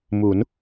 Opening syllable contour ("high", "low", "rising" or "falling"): rising